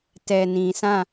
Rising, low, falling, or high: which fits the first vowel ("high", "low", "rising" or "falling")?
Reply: low